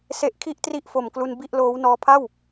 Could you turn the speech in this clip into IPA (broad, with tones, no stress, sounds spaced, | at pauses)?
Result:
s e˦˥ ʔ kʰ i˥˩ ʔ t r i˥˩ ʔ f o˨˩ m k l u˧ n b i˥˩ ʔ l oː˦˥ w n ɔː˧ pʰ a˥˩ w